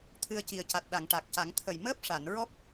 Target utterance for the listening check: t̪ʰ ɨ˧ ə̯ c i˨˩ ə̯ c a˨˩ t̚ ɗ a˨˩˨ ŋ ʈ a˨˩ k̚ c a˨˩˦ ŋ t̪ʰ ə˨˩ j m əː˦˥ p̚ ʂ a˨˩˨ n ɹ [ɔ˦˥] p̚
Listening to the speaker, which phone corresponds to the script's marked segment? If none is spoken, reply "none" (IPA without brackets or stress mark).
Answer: ɔ˦˥